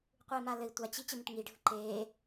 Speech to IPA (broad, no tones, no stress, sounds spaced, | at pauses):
qʷ ɯ i̯ m a l ɘ i̯ tʷ a t͡ɕ i t͡ɕ ɘ m ə ʈ ŋ i ɖʱ ɯ ǃ eː